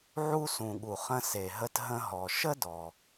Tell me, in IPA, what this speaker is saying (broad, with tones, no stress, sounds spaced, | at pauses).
ʕ u˧ s ũ˩ ɠ u˩ χ ə̃˧ s e˩ ɦ ə˧ t ɦ ə̃˧ ɦ ɔ˩ ʃ ə˥ d ɔ˩